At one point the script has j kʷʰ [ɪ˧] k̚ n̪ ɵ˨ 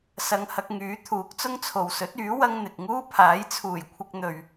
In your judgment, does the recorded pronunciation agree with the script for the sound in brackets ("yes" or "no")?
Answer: yes